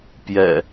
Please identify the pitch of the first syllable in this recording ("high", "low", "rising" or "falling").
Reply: low